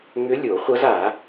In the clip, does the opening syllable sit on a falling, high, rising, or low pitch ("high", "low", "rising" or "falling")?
rising